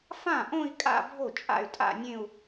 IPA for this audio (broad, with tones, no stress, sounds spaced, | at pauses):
f ã˥˩ ʔ õ˥˧ i̯ kʼ a̰˥˧ bʱ o˥˩ t͡ʃʼ a̰˥˩ y̯ tʼ a̰˥˧ nʲ ẽ˥˧ u̯